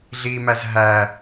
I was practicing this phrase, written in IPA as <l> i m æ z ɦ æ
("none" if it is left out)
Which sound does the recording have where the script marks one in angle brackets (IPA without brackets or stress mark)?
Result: ɮ